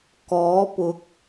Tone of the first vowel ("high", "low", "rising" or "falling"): rising